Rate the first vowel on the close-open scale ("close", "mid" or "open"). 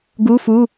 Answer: close